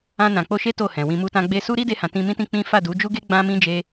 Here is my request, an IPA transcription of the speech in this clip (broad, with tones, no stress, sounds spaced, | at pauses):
ã˧ n ã˨ k͡p o˧ ʃ e˦ t o˦˨ h ɛ̃˨ w ĩ˨ m u˧ t ã˧ ɡ͡b e˧ s u˦ ɾ i˦ d e˧ h ã˨ t ĩ˧ m ĩ˦ t ĩ˦ k͡p ĩ˦ f a˦˨ d u˨˦ d͡ʒ u˦ ɡ e˦ ɡ͡b ã˦ m ĩ˦ d͡ʒ e˧